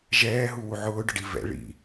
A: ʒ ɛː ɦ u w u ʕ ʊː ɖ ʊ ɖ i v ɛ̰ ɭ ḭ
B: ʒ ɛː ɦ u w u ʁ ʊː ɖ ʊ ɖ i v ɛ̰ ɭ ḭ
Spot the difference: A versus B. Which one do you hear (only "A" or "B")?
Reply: A